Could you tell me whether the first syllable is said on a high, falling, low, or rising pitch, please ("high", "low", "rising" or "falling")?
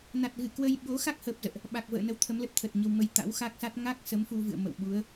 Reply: low